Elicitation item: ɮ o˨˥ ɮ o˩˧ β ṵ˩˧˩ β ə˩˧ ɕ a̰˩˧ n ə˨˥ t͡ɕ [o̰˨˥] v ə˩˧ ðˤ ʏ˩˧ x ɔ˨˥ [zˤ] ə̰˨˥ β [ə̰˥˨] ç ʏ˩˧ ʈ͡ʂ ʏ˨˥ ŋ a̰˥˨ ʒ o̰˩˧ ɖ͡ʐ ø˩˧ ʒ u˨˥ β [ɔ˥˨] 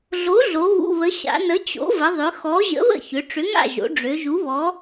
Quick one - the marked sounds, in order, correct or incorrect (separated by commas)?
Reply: correct, incorrect, correct, incorrect